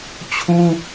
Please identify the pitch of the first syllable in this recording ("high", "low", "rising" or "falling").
high